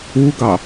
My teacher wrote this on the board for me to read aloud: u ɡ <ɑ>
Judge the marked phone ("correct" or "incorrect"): correct